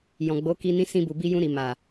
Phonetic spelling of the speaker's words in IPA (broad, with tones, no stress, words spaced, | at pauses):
jɔ̃˨ɡ͡bo˨˦ki˧ nĩ˧sĩ˧bu˨ bi˧jũ˧ɾi˨ ma˨